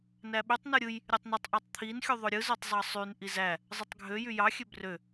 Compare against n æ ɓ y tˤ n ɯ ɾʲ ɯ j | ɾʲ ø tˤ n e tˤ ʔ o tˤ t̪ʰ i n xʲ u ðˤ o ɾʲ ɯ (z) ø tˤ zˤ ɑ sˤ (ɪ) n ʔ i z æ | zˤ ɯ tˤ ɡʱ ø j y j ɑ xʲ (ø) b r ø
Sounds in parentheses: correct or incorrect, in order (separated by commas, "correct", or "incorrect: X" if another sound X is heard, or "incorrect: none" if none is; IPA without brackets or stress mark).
correct, incorrect: y, correct